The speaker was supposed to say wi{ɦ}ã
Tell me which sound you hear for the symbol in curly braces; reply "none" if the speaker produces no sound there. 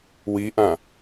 ʔ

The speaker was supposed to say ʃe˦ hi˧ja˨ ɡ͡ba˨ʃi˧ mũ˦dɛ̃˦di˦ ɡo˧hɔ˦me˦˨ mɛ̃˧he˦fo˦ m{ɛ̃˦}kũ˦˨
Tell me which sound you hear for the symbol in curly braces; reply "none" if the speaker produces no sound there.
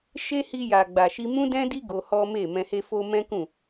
ɛ̃˦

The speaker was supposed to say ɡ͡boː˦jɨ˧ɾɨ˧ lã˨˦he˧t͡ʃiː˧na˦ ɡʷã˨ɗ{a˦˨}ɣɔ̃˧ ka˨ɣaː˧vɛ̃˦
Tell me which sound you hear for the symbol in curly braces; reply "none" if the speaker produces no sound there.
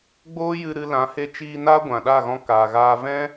a˦˨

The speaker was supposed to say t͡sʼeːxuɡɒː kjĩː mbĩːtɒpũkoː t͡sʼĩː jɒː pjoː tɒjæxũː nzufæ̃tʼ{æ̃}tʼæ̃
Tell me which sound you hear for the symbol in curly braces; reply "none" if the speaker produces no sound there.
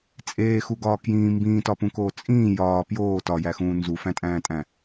æ̃ː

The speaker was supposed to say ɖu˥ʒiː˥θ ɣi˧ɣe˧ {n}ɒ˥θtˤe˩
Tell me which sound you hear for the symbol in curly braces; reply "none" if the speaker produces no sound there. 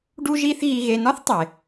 n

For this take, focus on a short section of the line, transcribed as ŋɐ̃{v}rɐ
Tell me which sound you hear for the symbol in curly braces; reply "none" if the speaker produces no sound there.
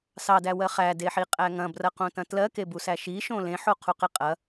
b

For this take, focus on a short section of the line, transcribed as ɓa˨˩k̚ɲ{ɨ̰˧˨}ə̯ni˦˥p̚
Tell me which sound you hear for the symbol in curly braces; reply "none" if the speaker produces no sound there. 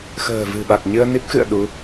ɨ˧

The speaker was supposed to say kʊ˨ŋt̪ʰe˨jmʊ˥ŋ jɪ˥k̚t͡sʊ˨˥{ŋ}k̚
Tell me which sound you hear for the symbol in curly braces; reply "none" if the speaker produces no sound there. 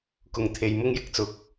none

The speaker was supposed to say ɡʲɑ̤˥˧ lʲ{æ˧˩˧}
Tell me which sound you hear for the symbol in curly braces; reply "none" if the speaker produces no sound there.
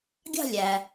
æ˩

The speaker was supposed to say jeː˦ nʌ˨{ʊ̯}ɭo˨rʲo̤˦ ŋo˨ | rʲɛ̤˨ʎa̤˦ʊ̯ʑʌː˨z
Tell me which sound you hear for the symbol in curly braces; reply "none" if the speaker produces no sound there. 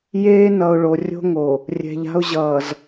ʊ̯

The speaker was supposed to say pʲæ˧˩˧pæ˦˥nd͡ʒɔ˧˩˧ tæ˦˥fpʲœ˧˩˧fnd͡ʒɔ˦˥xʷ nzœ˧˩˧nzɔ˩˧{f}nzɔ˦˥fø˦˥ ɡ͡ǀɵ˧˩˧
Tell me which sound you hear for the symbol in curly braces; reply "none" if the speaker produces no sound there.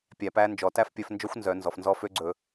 f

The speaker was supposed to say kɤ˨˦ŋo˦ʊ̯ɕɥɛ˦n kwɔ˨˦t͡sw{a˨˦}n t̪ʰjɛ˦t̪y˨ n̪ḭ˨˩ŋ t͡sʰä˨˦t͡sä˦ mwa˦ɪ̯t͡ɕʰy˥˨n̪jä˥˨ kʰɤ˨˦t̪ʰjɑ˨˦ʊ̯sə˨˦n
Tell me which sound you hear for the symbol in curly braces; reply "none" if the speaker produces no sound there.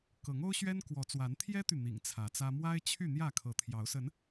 a˨˦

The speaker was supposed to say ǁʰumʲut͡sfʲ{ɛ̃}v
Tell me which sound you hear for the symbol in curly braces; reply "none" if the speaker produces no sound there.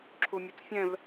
ɛ̃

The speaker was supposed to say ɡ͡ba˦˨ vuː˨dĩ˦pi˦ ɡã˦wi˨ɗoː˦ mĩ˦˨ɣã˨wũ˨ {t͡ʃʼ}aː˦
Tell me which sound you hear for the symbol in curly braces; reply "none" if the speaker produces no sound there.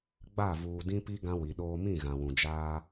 d͡ʒ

